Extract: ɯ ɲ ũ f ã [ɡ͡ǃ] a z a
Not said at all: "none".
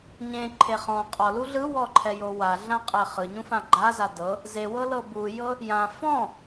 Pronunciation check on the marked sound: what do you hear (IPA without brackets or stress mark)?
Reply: ɡ͡ǃ